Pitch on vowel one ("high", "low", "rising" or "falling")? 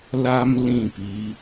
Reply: high